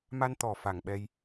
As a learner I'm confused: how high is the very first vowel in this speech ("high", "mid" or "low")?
low